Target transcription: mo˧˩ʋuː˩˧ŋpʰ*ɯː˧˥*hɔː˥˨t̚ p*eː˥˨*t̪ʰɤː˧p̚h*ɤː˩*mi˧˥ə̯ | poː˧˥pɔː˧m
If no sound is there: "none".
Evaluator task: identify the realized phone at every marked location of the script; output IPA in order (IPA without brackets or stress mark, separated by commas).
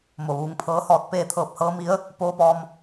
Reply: ɤː˧˥, eː˥˨, ɤː˧˥